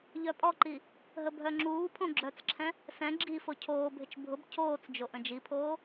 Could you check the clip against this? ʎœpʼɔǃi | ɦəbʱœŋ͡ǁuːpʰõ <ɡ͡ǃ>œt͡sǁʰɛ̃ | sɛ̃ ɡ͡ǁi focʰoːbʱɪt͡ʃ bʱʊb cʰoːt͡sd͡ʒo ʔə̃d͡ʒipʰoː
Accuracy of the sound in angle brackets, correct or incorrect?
incorrect